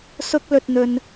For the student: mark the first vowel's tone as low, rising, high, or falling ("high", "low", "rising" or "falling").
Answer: high